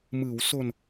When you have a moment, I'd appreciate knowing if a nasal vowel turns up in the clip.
no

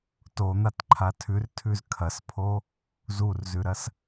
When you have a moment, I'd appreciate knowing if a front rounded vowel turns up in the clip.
no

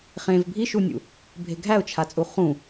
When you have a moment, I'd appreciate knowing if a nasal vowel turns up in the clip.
yes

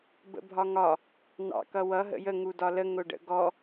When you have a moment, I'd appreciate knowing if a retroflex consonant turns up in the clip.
yes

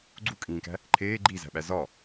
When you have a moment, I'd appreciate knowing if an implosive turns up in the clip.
yes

